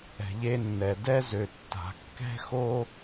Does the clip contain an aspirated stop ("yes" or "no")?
no